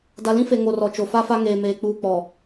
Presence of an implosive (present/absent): absent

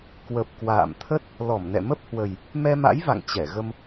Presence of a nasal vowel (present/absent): absent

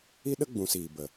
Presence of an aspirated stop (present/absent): absent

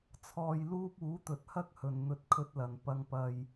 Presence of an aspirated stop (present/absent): present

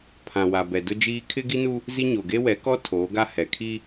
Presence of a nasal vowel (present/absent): present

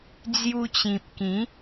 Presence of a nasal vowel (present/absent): present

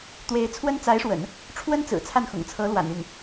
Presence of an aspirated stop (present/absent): present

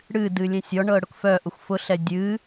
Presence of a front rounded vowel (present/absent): present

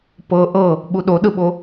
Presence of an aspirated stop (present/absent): absent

